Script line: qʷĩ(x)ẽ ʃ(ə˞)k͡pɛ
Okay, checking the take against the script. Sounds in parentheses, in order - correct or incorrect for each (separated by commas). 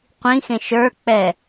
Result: correct, correct